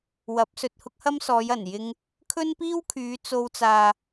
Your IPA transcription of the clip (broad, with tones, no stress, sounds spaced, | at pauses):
w ɐ˨˥ p̚ s ɵ˨ t̚ h ʊ˥ k̚ h ɐ˥ m s ɔː˨˧ j ɐ˨˩ n j ɪ˧ ŋ | kʰ ɵ˥ n p iː˥ w kʰ yː˨˧ t͡s o˧ w t͡s aː˨